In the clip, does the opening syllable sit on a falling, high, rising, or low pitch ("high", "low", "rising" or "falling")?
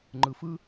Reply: low